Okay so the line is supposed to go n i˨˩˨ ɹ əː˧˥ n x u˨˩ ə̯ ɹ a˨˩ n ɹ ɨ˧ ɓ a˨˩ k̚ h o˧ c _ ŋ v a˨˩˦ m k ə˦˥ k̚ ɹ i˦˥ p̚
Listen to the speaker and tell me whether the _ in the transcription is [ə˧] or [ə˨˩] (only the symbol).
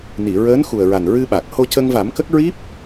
ə˧